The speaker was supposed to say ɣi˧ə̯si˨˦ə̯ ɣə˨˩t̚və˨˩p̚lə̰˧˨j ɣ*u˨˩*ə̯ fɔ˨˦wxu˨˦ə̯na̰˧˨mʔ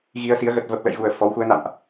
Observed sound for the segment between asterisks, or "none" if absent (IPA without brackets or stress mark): u˨˩